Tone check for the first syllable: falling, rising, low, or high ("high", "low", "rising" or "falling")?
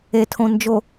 low